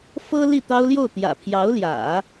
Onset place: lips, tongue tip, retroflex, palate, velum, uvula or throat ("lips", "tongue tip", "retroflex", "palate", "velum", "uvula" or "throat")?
lips